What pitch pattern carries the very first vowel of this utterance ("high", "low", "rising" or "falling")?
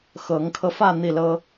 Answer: rising